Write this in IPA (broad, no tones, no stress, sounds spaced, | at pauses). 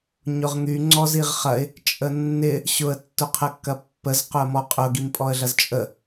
ɲ ʊ ʁ ŋ y ŋ͡ǀ ɔ z i ʁ χ ɐ ɪ̯ | t͡ʃʼ ə nː ɪ | ɕ ʊ ə̯ tː ʊ qʰ ə kː ɐ pː ə z q ʊ ə̯ m ɔ qʼ ʊ ɡ i m pʼ ɔ ə̯ ɮ ɐ z t͡ʃʼ ə